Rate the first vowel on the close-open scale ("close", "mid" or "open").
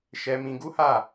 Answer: mid